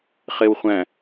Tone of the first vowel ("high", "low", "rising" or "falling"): low